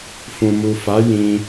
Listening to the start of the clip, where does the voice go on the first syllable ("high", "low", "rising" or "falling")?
low